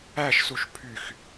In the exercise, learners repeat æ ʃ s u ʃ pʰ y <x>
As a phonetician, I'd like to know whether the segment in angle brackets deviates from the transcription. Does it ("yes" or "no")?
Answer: no